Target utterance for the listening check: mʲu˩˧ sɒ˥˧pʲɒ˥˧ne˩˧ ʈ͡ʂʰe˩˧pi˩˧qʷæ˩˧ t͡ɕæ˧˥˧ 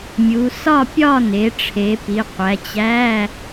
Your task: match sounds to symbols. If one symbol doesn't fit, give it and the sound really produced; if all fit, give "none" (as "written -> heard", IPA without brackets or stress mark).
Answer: none